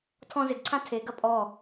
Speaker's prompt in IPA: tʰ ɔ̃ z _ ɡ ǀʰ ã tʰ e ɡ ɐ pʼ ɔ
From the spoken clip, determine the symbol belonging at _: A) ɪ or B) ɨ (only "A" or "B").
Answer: A